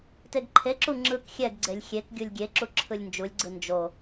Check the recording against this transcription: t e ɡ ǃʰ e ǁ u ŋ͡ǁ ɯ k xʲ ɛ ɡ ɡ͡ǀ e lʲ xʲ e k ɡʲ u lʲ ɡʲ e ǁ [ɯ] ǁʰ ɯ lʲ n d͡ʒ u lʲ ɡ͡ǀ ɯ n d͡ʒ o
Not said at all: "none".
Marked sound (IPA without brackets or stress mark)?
u